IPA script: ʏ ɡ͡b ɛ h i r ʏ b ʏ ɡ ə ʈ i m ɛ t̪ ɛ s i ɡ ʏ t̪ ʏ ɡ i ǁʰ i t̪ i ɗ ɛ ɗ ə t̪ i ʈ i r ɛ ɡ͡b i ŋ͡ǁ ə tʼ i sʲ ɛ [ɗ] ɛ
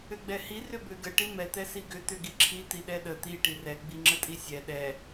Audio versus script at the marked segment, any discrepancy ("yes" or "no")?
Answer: no